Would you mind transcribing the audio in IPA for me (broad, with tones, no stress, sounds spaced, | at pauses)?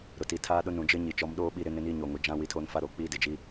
ɾ ʊ˨ t i˨ tʰ aː˦ ɗ ʊ˦ n ũ˨ d͡ʒ ɪ˦ ɲ i˨ t͡ʃ ɔ˨˦ m ɗ oː˦ ɓ i˦˨ ɾ ɪ˦ n ɪ˦ n iː˦ ɲ oː˨ ŋ o˨ d͡ʒ ã˦ w i˨˦ tʰ oː˦ n f a˦ ɾ o˨ k͡p iː˦ d ɪ˨ d͡ʒ i˦